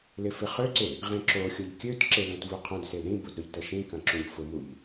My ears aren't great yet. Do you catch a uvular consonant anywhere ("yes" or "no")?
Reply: yes